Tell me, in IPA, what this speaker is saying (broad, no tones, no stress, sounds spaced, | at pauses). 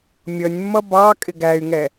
mʲ ʌ nʲ mː ʌ b ɑ kʼ ɪ ɡ æ y̯ ŋ ɛ